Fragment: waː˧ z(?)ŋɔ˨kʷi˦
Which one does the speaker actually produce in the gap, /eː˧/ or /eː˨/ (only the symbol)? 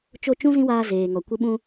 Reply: eː˨